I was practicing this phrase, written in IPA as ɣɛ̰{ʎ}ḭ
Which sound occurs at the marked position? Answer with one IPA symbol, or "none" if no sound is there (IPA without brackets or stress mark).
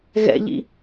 ʎ